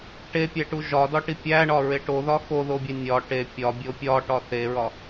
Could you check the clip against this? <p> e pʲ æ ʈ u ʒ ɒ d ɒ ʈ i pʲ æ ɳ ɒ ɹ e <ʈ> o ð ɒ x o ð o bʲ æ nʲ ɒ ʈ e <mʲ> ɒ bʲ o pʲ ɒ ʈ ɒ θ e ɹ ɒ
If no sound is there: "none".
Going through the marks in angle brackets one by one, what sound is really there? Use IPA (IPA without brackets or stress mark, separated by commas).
ʈ, ʈ, pʲ